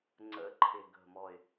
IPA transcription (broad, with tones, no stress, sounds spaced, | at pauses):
ŋ͡ǀ ə̰˨˥ ǃʰ ɪ˨˩ ɡ ə̤˨˩ m ɔ˨˩ ɪ̯